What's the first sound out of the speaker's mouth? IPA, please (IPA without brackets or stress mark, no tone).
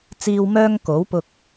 t͡s